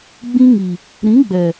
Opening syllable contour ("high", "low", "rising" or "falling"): high